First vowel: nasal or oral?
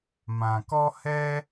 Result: nasal